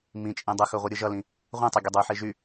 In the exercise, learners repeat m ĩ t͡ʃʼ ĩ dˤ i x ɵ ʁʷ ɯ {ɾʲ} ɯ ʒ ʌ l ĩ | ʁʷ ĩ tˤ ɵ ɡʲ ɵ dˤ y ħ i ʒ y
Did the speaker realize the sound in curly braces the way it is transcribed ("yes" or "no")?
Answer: yes